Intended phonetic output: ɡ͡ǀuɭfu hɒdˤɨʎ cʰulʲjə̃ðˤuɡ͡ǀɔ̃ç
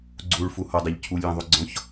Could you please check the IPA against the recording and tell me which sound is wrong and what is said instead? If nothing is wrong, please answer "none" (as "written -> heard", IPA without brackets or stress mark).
none